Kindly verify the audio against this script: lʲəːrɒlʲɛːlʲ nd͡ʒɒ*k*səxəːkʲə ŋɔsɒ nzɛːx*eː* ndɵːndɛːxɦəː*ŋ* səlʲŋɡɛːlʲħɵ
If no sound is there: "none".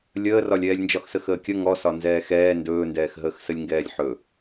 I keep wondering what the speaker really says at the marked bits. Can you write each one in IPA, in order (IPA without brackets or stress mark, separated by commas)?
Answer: x, ɛː, x